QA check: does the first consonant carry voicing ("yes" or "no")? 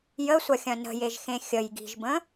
yes